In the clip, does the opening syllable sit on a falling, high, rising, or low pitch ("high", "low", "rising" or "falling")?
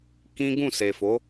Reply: high